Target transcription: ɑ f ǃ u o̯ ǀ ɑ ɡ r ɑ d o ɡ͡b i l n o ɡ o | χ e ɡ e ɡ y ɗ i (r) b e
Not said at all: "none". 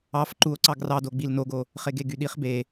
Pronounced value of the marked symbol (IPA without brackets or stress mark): χ